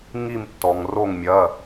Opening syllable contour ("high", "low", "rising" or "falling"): falling